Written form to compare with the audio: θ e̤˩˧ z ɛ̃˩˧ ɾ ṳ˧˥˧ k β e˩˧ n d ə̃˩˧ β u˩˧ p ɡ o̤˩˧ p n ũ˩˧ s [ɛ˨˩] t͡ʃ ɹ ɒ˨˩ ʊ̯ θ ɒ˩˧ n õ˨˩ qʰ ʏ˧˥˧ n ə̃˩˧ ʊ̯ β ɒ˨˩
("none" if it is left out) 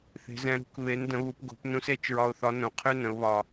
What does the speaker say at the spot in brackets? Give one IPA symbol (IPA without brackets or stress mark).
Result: e˨˩